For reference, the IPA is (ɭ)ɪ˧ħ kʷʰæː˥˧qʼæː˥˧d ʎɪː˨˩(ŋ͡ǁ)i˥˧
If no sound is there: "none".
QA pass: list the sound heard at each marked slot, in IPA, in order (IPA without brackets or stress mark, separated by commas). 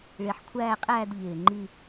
ɭ, ŋ͡ǃ